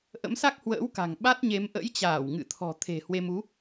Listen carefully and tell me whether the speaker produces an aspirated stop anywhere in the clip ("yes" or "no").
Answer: yes